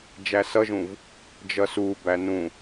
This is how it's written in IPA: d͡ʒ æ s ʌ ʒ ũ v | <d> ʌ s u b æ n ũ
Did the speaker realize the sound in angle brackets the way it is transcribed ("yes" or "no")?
no